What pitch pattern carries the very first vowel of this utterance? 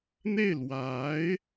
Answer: falling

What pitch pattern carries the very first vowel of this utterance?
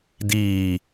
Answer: low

